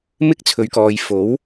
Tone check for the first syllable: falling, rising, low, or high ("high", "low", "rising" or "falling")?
high